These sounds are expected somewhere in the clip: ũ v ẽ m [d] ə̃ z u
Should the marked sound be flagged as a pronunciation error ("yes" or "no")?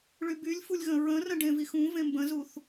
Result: yes